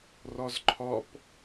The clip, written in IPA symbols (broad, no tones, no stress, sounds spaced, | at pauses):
r ɒ z ǃʰ ɒ p